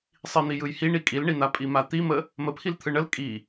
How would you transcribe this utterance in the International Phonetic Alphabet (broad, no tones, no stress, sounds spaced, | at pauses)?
sˤ i n̪ i j ɯ j h i ɳ i kʼ i l ɳ i n̪ a pʼ i m a t̪ i m ə | m ə pʰ i l t̪ʰ ɯ ɳ ə l kʼ i